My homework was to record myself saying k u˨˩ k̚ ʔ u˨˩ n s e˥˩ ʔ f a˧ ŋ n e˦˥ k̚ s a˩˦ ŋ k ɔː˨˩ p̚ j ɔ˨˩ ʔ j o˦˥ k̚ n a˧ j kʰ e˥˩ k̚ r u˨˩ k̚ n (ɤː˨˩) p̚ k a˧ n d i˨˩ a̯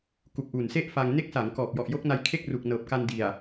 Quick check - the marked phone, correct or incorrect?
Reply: correct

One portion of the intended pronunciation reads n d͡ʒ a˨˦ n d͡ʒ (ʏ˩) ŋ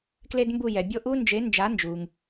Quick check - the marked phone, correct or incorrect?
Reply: incorrect: u˩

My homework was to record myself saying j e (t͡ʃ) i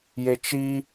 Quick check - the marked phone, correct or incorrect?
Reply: correct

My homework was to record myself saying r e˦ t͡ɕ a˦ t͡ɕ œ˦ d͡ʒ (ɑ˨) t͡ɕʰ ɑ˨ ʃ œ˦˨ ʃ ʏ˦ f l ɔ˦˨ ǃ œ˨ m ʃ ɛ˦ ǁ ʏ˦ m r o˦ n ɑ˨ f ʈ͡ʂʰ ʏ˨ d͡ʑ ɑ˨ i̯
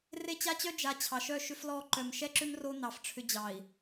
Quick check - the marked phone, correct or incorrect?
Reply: incorrect: a˨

